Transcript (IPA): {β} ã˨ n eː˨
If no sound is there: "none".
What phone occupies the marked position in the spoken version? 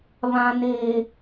β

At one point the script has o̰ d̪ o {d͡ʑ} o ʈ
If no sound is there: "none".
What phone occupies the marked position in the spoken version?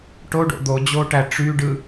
d͡ʑ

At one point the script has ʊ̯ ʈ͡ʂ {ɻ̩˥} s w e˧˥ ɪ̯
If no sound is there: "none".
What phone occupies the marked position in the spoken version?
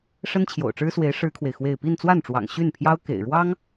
ɻ̩˥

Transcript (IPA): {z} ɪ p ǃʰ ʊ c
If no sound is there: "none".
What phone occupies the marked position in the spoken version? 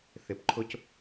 θ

